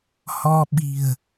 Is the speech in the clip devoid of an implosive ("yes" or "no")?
no